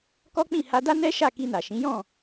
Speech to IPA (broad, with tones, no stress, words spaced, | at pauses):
kɔ˦k͡pĩ˦˨ ha˧da˦ nɛ˦ʃa˦˨ ki˧na˨ʃĩ˨˦jɔ̃˦˨